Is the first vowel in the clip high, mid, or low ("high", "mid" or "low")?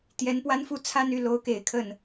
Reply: mid